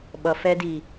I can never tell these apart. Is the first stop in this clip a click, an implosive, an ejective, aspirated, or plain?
implosive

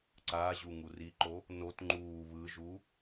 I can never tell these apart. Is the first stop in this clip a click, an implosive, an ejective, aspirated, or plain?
click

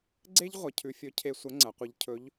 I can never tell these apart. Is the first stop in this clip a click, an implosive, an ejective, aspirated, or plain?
click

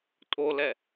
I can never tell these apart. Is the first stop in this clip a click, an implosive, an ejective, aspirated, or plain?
ejective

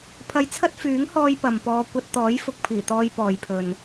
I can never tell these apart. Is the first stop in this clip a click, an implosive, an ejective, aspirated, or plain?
aspirated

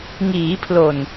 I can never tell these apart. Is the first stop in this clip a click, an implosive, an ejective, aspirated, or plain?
aspirated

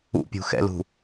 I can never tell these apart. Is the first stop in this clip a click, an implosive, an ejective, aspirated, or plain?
plain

